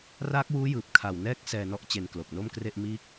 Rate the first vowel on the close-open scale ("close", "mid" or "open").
open